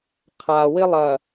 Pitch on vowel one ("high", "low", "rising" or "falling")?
low